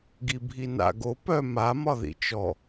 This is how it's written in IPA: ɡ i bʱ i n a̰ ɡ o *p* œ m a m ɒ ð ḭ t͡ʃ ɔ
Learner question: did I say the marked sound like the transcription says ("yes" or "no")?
yes